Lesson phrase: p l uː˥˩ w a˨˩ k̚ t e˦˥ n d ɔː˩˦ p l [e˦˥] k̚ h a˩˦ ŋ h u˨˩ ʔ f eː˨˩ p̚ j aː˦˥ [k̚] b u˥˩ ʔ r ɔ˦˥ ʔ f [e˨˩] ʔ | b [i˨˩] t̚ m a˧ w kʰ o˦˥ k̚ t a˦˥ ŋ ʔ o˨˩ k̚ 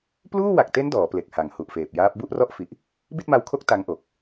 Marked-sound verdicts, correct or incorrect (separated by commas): incorrect, incorrect, incorrect, incorrect